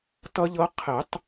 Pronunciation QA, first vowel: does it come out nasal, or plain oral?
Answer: oral